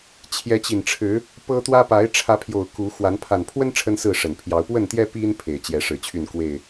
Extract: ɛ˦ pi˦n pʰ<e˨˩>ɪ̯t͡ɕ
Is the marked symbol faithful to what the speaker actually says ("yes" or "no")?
yes